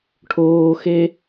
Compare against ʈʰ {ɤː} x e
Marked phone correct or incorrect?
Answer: incorrect